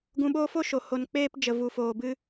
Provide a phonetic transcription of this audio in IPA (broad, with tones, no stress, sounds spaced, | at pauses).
ɡ ũ˧ ɓ oː˦ f o˦ ʃ o˨ h o˧ n k͡p eː˦ p d͡ʒ ə˨ v u˨ f oː˨ b ɨ˧